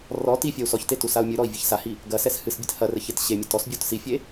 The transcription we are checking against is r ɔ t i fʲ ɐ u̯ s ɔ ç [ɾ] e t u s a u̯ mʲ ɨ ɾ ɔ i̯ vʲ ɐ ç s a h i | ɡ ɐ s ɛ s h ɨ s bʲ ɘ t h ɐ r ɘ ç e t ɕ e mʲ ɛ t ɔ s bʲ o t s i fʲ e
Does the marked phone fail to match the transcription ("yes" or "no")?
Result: yes